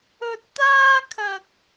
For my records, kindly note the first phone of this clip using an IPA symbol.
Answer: ɵ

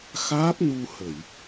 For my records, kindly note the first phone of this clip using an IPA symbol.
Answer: x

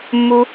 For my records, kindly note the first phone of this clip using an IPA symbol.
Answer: mː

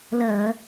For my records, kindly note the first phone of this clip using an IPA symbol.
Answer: l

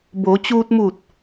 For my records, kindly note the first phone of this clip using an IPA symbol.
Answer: b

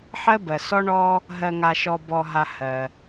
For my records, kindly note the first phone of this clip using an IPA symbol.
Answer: ħ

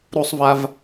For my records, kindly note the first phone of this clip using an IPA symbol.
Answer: ɾ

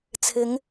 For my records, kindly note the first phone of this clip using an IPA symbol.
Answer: t͡sʰ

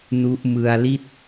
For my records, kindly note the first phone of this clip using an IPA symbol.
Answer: n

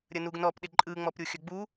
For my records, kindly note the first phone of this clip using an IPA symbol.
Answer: ɾʲ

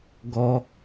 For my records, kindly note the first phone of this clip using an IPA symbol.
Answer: ɡ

